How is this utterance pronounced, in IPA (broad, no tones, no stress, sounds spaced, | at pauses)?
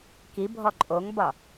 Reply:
k i bʱ ɔ ǃʼ o ŋ b ɒ